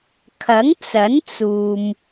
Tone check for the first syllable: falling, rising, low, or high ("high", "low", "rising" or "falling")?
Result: rising